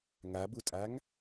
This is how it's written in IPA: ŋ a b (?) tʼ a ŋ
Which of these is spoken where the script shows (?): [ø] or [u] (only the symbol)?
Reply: u